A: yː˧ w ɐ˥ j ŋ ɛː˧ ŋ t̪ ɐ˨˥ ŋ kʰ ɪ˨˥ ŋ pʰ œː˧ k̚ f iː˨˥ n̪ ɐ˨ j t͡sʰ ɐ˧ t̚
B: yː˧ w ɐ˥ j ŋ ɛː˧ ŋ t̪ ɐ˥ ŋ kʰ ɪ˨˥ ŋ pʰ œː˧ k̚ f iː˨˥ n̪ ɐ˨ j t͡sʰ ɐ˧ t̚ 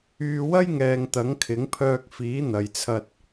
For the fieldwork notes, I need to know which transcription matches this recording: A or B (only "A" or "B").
A